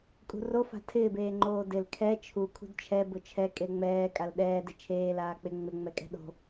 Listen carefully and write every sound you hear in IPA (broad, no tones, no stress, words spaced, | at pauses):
kʼṳro fa̤tʰɪːb eːŋ͡ǃoːdɪl kʰɛ t͡ʃʰu kʰṳdt͡ʃʰɛ bʊt͡ʃʰɛ kʼeŋ͡mɛː kʼalɗɛː dɪt͡ʃʰeː laːk͡pɪ ŋ͡mɪ ŋ͡mɛkʼɛ̤ɗo̤